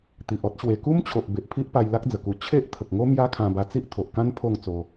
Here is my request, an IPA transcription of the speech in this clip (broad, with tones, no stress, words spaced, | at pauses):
t̪i˨ʔɔ˦t̚ɕwe˧ ku˦mt͡ɕʰo˨ʔ be˨ʔpʰi˦ʔpa˧j la˦k̚ d͡zə˨˩ku˧ t͡ɕʰe˦ʔt̪ʰə˨k̚ŋo˦ mja˦kʰã˧ba˧ t͡si˦ʔt̪ʰo˨ʔkã˦n pʰo˥˧ŋt͡so˧